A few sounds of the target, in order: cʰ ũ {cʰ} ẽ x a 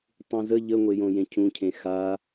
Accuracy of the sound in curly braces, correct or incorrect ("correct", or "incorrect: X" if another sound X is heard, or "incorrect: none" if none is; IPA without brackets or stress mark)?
correct